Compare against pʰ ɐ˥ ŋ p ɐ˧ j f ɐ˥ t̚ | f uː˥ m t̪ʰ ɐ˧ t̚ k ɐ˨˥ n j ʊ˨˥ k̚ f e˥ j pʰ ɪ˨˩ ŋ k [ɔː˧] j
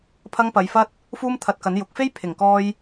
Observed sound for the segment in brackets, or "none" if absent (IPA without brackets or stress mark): ɔː˧